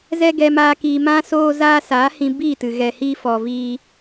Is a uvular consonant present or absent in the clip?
absent